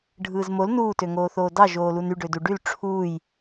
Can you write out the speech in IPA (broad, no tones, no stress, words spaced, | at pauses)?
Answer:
ɖʱɯːzmol nuːtøŋoːθoː dɑʒoː luny ɖøduɖyl ʈ͡ʂʰuːj